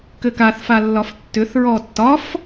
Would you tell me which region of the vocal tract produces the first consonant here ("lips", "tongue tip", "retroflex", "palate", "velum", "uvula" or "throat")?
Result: velum